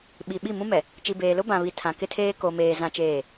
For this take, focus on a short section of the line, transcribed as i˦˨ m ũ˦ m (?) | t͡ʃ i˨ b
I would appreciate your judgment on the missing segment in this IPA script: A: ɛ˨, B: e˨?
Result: A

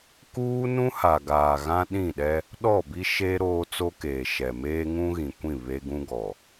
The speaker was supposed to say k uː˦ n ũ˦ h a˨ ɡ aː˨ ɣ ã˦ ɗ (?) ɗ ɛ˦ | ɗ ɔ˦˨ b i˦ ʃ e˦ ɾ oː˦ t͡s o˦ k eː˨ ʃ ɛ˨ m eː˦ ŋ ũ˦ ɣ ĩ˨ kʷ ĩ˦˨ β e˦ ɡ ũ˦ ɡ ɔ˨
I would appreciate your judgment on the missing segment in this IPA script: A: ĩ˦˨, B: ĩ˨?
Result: A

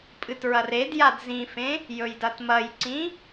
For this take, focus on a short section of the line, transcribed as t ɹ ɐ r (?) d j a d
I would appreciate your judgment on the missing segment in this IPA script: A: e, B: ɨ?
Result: A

